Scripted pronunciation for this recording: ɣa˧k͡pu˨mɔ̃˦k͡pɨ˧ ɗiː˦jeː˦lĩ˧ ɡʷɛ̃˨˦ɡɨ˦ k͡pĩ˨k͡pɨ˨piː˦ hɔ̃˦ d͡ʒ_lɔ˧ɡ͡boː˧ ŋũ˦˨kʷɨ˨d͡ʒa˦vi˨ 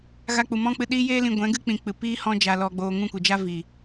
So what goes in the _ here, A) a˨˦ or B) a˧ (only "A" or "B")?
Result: B